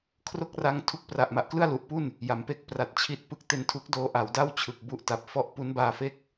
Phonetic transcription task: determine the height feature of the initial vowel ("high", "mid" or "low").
mid